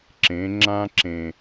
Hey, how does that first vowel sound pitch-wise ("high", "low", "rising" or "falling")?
rising